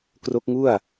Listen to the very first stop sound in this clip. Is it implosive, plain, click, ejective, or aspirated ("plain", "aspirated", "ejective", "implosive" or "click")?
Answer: plain